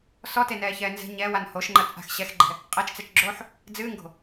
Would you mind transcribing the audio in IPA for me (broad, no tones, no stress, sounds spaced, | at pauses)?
s ɔ t e n ɛː ç ɛː n z ɛ̤ ɲ ɛː w a n h o ʃ ŋ͡ǃ ɐ t͡sʼ a̤ x ɕ ɛ x ɡ͡ǃ ɛ̤ | qʼ ɛ t͡ʃ t͡s ɛ t͡ʃ ɡ͡ǁ oː ħ | d͡z ɨː ŋ ɡ o̤